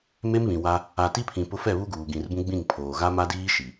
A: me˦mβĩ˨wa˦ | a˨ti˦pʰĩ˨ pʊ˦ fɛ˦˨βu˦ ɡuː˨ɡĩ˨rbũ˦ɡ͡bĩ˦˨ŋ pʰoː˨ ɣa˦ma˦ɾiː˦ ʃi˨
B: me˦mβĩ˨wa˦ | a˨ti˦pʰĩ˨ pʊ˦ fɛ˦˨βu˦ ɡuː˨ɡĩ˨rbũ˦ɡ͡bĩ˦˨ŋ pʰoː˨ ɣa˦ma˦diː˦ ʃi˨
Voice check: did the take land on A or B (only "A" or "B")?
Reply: B